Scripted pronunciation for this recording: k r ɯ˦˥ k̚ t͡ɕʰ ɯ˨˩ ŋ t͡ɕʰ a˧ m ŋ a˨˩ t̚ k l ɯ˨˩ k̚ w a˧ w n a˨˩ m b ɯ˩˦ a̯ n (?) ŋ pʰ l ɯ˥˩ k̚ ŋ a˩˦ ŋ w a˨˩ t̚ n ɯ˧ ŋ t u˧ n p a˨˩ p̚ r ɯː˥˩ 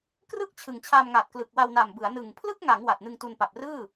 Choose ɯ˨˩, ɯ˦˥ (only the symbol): ɯ˨˩